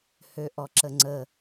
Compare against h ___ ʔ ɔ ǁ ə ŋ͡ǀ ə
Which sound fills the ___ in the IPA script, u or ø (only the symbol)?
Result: ø